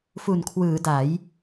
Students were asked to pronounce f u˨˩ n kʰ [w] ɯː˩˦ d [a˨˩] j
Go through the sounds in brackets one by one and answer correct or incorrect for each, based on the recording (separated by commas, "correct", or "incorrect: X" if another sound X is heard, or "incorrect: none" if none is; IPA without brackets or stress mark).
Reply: correct, incorrect: a˩˦